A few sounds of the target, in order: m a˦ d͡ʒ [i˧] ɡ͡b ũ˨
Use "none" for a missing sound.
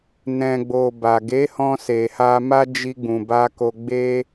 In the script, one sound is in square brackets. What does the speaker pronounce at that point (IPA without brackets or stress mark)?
i˧